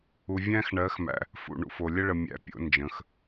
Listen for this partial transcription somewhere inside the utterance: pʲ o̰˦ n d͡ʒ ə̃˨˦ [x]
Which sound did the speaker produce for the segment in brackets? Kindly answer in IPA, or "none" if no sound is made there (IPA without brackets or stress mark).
x